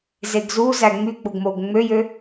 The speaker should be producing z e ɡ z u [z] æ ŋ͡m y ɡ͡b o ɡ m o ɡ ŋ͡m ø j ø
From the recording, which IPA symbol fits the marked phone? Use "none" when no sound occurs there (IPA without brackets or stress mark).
z